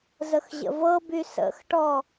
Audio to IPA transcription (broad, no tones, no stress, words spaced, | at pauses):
zəxʑə̰vɤby sə̰xʈɔ